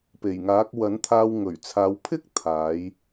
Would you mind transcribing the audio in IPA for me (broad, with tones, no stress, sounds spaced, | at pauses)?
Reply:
p e˨˩ j ŋ aː˨˥ k̚ w ɐ˨˥ n t̪ʰ aː˧ w ŋ ɵ˨˩ ɥ t͡sʰ aː˨˧ w pʰ ɪ˥ k̚ t̪ʰ aː˨˥ j